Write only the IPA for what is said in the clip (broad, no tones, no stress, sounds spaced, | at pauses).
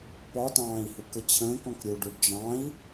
p ɒ t ɑ̃ː i̯ h u k ə t͡ɕʰ ə̃ː k ɔ̃ k ɾʲ u ɖ u ɖ d͡ʒ ɑ̃ i̯